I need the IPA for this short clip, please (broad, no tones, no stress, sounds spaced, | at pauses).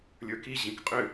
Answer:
lʲ ə˞ k i ʑ ĩ k qʼ ʏ